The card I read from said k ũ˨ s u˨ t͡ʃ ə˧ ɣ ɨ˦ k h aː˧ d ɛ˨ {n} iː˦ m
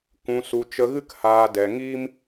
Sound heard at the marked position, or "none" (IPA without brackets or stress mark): ŋ